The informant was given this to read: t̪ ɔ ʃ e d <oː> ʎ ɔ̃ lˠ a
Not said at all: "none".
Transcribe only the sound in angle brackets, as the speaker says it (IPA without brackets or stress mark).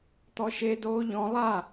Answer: oː